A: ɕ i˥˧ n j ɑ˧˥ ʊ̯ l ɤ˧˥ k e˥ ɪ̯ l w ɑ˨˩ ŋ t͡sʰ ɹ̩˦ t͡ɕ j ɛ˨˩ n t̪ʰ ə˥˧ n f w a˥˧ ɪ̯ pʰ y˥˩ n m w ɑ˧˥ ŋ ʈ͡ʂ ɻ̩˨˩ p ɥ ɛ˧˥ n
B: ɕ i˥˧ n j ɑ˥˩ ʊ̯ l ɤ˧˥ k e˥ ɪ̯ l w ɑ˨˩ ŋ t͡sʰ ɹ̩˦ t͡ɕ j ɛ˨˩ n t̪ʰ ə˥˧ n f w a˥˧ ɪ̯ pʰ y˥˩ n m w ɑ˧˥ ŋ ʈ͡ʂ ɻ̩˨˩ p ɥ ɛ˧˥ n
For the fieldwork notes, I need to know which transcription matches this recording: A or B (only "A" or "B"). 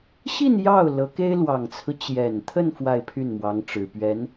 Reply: B